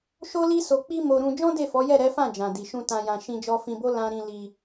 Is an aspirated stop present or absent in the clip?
absent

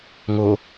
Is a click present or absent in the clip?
absent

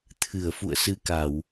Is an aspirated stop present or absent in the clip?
present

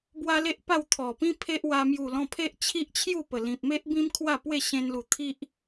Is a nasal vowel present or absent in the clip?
present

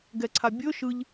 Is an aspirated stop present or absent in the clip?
present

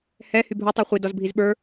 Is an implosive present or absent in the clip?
present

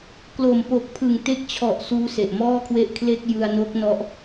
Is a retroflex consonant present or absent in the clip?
absent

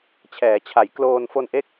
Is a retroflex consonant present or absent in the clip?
absent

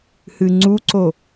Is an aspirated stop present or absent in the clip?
absent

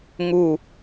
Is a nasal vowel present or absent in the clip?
absent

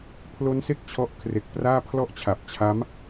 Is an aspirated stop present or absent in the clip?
present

